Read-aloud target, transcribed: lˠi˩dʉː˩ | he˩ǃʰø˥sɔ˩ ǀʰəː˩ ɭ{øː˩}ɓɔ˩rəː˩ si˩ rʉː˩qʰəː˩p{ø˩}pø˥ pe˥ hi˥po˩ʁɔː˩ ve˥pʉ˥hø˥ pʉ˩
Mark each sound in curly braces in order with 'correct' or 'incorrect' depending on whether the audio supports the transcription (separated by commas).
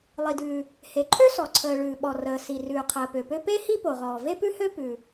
incorrect, correct